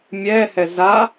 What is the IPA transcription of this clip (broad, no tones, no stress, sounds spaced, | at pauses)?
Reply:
mʲ ɛː h ɛ z a